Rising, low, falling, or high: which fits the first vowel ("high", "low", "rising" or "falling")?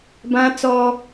high